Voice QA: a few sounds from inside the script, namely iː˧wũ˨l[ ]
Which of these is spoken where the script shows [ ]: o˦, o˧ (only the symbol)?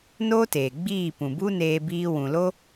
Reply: o˦